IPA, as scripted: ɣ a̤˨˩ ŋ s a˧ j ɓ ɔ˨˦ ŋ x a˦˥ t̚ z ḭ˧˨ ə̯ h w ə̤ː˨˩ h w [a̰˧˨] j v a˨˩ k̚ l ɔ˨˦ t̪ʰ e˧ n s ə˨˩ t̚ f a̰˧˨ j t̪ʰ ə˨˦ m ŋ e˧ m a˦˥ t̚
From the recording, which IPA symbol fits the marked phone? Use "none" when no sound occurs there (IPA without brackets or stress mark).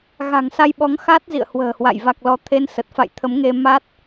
a̰˧˨